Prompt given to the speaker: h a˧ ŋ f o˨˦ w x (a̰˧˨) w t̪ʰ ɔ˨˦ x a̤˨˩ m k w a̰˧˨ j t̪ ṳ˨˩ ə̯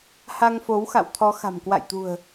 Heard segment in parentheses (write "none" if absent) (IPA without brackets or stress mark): a̰˧˨